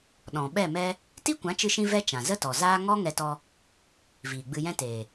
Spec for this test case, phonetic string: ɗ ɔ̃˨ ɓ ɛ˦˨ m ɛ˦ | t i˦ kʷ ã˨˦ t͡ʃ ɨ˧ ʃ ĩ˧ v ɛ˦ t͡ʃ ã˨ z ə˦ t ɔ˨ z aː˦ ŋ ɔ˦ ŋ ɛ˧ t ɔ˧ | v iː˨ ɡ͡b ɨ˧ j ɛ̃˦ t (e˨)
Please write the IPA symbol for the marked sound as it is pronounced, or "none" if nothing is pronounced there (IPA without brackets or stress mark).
eː˨